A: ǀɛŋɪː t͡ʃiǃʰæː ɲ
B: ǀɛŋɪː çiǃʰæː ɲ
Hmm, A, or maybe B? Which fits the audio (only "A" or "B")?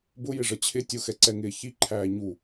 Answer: B